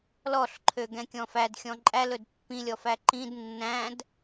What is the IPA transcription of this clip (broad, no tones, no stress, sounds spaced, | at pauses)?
l ɔ ɬ ǃʰ ø ɡ ɛ̃ kʲ ɔ̃ f æ d xʲ ɔ̃ ǃʼ æ l ɵ d pː ĩ lʲ ɔ f æ ǃ ĩ d nː æ̃ d